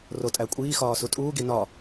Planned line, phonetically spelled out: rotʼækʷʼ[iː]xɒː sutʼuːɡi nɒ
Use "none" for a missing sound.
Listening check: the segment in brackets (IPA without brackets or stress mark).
iː